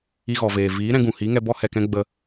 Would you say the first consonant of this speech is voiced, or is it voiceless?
voiced